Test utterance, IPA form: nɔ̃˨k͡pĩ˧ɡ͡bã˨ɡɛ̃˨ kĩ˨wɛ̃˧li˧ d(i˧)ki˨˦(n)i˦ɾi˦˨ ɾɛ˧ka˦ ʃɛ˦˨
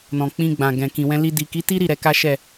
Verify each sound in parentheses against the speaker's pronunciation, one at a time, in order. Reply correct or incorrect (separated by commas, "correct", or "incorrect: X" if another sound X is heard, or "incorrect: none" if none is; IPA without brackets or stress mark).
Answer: incorrect: i˨, incorrect: t